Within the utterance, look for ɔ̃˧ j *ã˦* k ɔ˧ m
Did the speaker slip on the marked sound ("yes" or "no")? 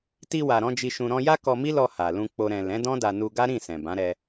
yes